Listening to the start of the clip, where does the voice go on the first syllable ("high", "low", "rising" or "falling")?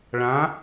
rising